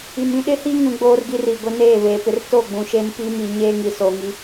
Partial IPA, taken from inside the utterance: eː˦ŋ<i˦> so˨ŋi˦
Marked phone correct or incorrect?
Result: incorrect